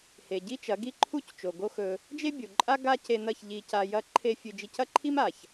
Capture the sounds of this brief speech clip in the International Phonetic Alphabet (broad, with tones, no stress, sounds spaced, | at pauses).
h e˨ ɟ i˦ t͡ʃ ɐ˨˦ ɡ i˦ ǃʰ u˦ c t͡ʃ o˨ ɡ o˦ x ɵ˧ | d͡ʒ e˦ bʲ o˨ ǃʼ a˦ ɡ a˦ c e˧ n ɐ˦˨ ç ʎ i˧ c a˧ j ɐ˦ ǃʰ e˦ fʲ ɨ˧ d͡ʒ i˧ c ɐ˦ ǃʰ i˦ m a˨ ç